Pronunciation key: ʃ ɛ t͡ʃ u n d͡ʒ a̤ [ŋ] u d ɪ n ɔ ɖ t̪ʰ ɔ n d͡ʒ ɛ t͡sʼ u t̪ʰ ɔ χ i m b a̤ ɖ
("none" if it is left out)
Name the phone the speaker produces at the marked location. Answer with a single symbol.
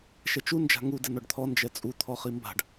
ŋ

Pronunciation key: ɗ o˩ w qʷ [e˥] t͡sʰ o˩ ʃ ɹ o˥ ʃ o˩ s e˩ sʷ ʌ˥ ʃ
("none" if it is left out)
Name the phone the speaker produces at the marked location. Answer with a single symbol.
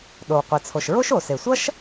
e˩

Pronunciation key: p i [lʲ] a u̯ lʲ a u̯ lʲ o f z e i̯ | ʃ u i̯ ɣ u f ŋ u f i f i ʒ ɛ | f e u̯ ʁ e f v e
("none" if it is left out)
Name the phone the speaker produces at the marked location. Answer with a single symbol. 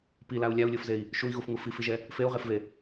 l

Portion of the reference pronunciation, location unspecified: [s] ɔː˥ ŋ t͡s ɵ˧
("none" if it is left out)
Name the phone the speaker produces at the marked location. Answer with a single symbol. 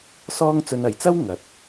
s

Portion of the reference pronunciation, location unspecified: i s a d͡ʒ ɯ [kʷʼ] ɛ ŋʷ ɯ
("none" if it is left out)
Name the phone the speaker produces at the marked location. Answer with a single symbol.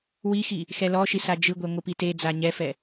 ɡʷ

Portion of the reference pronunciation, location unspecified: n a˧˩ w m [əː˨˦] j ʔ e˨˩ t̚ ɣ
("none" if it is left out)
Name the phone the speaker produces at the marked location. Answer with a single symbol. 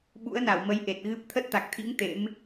ə˨˦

